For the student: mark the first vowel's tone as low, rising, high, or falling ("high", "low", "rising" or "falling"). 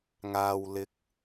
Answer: low